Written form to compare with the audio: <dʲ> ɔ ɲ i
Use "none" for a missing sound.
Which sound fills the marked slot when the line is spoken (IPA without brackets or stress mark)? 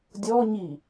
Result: dʲ